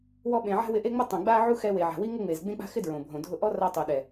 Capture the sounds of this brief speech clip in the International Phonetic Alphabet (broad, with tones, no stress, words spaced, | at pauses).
wɔ˧ɓẽ˨ʕa̤˦ wɪ˧ʔe˦ŋ͡mɪ˦tˤõ˨ ɡ͡ba˦ʕu˦xɛ˧ we˨ʕa̤˨wi˦ ŋʊ˦ ŋ͡me˨zɡ͡bẽ˦k͡pa̤˦xɪ˦ dɹõ˨bʱõ˨ dʱʊ˦ ʔɔ˦ ra˧tˤu˨ɗɛ˨